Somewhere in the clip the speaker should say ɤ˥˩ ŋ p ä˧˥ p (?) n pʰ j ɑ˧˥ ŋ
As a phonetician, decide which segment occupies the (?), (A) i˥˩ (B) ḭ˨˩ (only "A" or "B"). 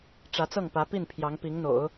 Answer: A